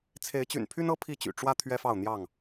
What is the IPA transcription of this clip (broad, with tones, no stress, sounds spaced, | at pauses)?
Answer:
t͡sʰ e˨˦ ɪ̯ t͡ɕ y̰˨˩ n pʰ y˦ n ɤ˦ pʰ i˥˨ t͡ɕ y̰˨˩ ʈ͡ʂ w ä˦ t̪ʰ ɥ ɛ˦ f ɑ˥˨ ʊ̯ n̪ j ɑ˥˨ ŋ